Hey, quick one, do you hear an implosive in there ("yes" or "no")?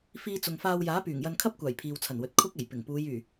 no